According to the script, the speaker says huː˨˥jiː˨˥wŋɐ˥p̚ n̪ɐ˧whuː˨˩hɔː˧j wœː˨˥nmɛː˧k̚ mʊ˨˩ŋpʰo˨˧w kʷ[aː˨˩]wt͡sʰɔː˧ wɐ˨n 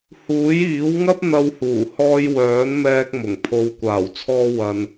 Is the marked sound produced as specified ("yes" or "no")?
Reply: yes